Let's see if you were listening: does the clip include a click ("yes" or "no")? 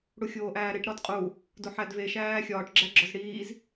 yes